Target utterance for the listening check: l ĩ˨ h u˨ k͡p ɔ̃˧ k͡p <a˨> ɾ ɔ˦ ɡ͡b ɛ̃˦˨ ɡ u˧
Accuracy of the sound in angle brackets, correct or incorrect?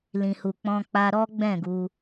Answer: incorrect